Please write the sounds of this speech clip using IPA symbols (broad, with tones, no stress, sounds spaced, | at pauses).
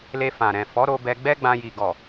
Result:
l e˧ f ã˨ ɾ ɛ̃˨ f ɔ˨˦ ɾ o˧ b ɛ˧ ɡ͡b ɛ˦ ɡ͡b ã˧ j i˨ ɡ ɔ˨